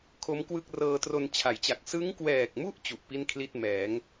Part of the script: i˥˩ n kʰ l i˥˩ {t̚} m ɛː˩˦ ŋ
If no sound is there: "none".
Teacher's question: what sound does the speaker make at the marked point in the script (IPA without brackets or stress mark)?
t̚